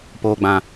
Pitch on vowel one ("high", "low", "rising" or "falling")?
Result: low